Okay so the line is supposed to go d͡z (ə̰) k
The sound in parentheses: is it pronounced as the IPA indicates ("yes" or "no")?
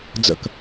yes